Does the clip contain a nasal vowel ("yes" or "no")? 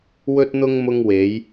no